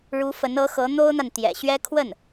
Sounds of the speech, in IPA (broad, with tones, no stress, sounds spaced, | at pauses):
ɻ u˧˥ f ə˧˥ n ɤ˧˥ x ɤ˧˥ n̪ o˥ ʊ̯ n̪ a˨ n t̪ j ɛ̰˨˩ ɕ ɥ ɛ˥ kʰ w ə˥˩ n